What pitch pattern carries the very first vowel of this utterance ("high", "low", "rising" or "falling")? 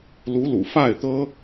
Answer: rising